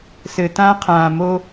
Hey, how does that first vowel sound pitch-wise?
low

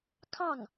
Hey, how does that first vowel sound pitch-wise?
falling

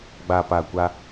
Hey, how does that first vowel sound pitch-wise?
low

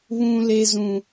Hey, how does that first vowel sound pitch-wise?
low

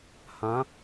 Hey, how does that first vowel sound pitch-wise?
rising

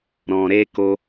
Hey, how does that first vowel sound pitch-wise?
low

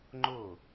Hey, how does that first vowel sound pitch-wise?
falling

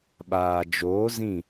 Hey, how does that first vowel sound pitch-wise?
low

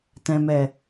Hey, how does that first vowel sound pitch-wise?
low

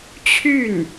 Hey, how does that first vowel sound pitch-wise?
falling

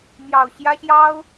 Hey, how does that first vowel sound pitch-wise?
low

